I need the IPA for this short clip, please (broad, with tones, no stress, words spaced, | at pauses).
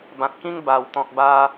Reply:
bã˨t̚kĩ˦ŋba˨˩w t̪ɔ̃˨k̚ ba˦